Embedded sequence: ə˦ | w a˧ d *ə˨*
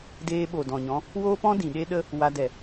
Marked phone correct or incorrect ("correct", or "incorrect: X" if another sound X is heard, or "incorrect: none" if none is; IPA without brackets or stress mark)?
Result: incorrect: ɛ˨